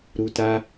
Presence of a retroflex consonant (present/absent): absent